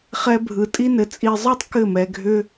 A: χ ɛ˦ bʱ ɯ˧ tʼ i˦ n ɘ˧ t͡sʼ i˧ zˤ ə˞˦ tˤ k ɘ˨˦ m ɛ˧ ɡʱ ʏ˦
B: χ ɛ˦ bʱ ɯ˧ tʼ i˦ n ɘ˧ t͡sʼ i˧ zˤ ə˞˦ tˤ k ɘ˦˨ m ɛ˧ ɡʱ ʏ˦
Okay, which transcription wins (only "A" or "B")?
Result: B